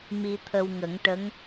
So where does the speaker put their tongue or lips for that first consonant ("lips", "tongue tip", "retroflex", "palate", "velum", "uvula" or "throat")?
lips